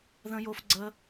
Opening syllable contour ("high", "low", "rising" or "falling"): high